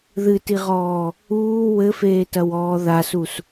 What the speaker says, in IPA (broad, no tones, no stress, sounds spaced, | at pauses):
ð ɨ t i ʁ ɔː | uː w ɘ f eː t ɐ w ɔː ð a s u s